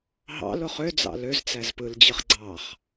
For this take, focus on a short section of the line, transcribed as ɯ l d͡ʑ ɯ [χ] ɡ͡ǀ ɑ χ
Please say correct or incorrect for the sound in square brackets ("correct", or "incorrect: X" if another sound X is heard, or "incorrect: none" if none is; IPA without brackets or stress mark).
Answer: correct